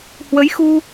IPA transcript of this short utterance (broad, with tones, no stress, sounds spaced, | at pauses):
h w ə˨˦ j x u˧